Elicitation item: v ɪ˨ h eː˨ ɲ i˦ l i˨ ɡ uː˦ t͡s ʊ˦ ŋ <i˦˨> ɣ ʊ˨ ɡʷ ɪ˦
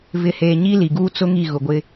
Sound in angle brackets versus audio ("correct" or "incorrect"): correct